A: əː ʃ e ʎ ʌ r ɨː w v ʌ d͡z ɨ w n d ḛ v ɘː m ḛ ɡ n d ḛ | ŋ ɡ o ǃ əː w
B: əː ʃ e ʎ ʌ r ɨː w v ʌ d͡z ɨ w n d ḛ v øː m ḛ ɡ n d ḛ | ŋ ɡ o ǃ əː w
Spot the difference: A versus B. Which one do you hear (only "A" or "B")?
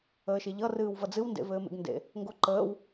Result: A